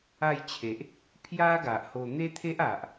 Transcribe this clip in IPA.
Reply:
a˥˧ j t͡ɕʰ e˨ ʔ | pʰ j a˦ ɡ a˨ ʔ h o˧ n̪ e˦ t̪ʰ e˦ ʔ a˨ ʔ

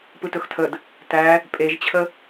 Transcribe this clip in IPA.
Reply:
p ɯ t ɵ x tʰ ə d | t æ | pʼ e ʒ t͡ɕʰ ə

